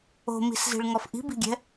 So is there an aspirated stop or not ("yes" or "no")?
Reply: no